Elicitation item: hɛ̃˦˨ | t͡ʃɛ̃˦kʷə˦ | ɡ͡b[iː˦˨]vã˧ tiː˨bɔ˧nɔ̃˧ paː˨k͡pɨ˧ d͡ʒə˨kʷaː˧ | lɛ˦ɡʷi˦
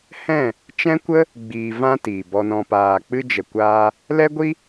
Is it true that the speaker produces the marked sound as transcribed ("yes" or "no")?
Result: no